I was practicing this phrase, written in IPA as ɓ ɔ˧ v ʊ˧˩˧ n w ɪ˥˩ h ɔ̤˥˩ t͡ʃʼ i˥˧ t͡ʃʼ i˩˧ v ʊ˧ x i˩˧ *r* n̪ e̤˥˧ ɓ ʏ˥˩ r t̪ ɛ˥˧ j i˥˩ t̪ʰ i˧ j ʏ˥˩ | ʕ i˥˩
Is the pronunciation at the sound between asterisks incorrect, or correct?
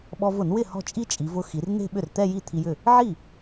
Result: correct